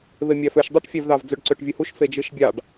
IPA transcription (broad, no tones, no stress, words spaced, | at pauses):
βemʲæføʃ dˤøʈfʲævðɑv d͡zøɖǀøʈvʲɯhuʃ fed͡ʒɯʃbʲɑɖ